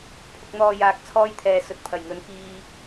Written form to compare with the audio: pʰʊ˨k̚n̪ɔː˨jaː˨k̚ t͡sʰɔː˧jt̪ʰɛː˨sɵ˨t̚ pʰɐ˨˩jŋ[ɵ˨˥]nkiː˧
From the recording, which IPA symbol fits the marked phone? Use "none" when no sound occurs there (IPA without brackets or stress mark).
ɵ˨˧